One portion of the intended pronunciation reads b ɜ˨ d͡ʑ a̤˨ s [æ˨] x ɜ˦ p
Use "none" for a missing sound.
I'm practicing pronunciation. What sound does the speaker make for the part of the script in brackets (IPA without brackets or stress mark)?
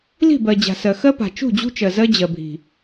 ɜ˨